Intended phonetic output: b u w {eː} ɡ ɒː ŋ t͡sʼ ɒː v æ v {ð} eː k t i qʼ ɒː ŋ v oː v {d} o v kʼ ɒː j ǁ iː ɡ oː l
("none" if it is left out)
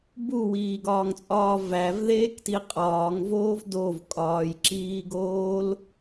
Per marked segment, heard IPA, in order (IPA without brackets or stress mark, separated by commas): iː, ð, d